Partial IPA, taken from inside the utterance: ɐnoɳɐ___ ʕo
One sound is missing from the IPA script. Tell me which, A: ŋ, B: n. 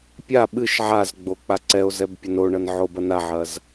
B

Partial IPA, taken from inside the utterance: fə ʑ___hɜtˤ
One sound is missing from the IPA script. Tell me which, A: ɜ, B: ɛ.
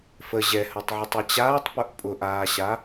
B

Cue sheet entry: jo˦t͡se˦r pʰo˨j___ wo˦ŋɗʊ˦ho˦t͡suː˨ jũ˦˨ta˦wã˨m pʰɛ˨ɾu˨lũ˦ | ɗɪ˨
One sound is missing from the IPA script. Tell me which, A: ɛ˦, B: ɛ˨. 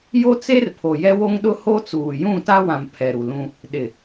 A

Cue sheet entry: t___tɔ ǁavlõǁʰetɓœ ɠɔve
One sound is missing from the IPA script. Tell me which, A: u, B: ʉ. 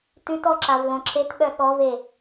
B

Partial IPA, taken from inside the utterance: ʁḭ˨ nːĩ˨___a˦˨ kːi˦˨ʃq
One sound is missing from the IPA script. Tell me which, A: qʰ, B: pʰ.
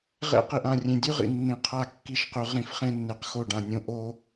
A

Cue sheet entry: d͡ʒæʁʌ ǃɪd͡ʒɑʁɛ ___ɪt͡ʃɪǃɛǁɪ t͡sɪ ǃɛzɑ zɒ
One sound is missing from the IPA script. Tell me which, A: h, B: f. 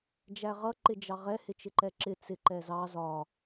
A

